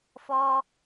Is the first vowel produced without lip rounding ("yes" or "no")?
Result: no